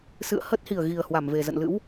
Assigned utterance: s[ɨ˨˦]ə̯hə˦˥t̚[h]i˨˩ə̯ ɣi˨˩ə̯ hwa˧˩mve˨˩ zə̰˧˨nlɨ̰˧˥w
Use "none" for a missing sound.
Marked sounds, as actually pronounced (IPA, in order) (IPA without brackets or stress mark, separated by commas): ɨ̰˧˨, h